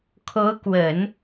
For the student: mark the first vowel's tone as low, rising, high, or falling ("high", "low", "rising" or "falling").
rising